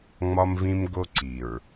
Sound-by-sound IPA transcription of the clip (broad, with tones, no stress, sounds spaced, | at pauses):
ŋ͡m ɒ˦ m v ĩ˦ m ɡ o˦ ǀ i˨ ɹ